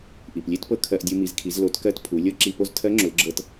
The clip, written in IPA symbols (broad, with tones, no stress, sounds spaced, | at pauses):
ʔ i˩ p lʲ e˥ t p ɤ˧ kʰ ɜ˧ ʔ dʲ u˧ m i˩˧ z kʰ i˩˧ z l o˩˧ t k ɜ˧ t pʰ u˩˧ lʲ ɤ˥ ǁ i˧ p o˥ z tʰ ɜ˧˥ ŋ͡ǁ ʊ˩˧ l ɡ͡ǁ ɤ˧ t